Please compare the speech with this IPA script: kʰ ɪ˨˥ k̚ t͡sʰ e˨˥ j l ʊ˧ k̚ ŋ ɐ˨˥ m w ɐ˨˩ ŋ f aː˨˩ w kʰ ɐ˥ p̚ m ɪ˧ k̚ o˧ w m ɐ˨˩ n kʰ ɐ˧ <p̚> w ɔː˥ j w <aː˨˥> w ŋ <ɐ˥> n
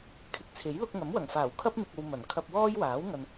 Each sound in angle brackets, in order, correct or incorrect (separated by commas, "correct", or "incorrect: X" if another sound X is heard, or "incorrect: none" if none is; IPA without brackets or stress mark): correct, correct, incorrect: ɐ˨